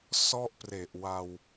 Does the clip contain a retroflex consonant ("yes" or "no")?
no